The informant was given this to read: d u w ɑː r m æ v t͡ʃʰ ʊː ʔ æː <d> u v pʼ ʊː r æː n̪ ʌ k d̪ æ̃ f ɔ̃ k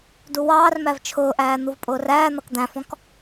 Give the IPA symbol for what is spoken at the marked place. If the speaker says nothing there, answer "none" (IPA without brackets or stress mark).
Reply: n̪